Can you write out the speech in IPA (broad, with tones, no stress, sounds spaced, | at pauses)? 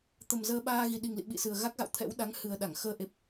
t̪ ə˨˩ m z əː˧ ɓ aː˧ ɣ i˨˩ ɗ i˨˩ ŋ l ḭ˧˨ ɓ ḭ˧˨ s ɨ˨˩ ə̯ ɣ a˦˥ k̚ ɣ a̰˧˨ w t̪ʰ ɛ̰˧˥ w ɗ a˨˦ ŋ h ɨ˨˩ ə̯ ɗ a˧˩ ŋ x əː˧ ʔ e˨˩ p̚